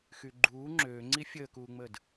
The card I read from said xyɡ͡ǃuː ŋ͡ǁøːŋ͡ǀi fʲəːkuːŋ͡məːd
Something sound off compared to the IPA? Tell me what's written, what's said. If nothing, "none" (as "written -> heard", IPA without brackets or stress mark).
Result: none